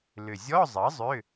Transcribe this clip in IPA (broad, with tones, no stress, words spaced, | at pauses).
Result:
lʏ˨˩zʲɔ˧˥˧zˤʌ˩˥ zˤʏ˧˥˧